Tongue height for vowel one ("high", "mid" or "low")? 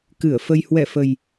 high